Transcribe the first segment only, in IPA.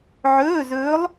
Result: ʕ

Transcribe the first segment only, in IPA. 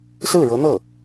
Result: s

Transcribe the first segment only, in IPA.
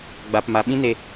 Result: ɡ͡b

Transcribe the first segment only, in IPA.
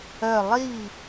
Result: œ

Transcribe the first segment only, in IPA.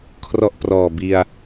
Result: kʰ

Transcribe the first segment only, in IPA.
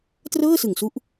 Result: t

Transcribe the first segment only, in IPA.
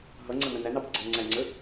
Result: ɦ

